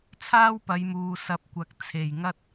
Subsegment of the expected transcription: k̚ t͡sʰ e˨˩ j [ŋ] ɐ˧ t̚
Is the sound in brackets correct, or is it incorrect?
correct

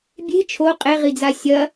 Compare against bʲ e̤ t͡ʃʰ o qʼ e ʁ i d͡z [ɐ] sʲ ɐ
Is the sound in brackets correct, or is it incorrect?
incorrect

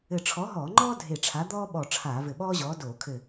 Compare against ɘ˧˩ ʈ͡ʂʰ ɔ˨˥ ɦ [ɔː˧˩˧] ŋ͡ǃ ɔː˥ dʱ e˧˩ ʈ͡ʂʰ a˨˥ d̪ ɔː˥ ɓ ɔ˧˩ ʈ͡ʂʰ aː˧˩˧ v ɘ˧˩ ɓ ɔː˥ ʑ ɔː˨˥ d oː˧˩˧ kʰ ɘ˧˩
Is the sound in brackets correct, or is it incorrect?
correct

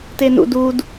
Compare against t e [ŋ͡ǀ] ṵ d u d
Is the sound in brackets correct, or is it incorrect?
incorrect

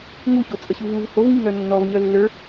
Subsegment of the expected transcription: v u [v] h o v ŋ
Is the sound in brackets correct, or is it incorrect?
correct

